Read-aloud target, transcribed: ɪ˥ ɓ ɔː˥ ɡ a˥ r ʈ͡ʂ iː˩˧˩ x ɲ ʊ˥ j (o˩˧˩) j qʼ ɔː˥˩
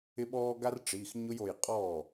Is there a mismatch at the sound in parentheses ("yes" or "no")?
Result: no